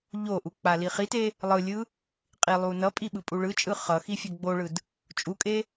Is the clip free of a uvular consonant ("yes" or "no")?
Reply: no